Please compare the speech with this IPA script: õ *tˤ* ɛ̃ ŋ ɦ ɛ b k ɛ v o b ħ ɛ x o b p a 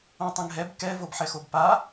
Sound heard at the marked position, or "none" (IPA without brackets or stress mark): tˤ